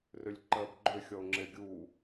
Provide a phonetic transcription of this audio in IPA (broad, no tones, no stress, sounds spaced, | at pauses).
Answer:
r ʏ lʲ ǃ ɜ b ɡ͡ǃ ʏ xʲ ɔ ʊ̯ ŋ͡ǁ e ɡʲ u